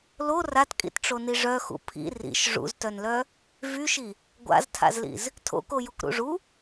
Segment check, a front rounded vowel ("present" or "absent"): present